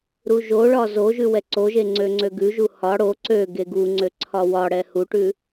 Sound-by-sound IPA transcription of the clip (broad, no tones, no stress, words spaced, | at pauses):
ɾuʒoɭɒ zoʒʉ wɛǀoʒe ŋ͡ǀøŋ͡ǀøɡʉʒu hɒ ɽo ǀø ɡeɡuŋ͡ǀø ǀʰɒwɒɽɛ huʈʉ